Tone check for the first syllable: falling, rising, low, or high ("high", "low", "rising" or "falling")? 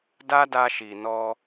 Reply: high